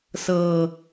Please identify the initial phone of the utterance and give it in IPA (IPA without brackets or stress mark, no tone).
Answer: s